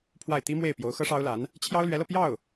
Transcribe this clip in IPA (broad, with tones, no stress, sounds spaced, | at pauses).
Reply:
pʰ w a˥˩ ɪ̯ t̪ i˥ m w e˥˩ ɪ̯ p j o˧˥ ʊ̯ x ɤ˥ ʂ ɑ˥ ʊ̯ l a˧˥ n | t͡ɕʰ j ɑ˥ ʊ̯ l ɥ ɛ˧˥ l ɤ˧ p j ɑ˥˩ ʊ̯